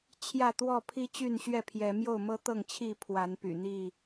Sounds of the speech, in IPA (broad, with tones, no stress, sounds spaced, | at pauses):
t͡ɕʰ j ä˥˨ t̪ w ɔ˥˨ pʰ i˦ t͡ɕ y˥˨ n ɕ ɥ ɛ˥˨ pʰ j ɛ˨˦ m j o˥˨ ʊ̯ m ɤ˦ t̪ ɤ˥˨ ŋ t͡ɕʰ i˥˨ pʰ w a˨˦ n p y̰˨˩ n̪ i˥˨